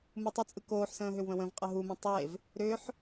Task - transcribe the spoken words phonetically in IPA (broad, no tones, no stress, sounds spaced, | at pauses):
m u tˤ ʏ t͡sʼ ɯ k oː ħ s ə̃ː ɦ ʏ w β ə̃ w ə̃ v qʼ ə ɦ u m ẽ tˤ e v | ɾ ʏ ħ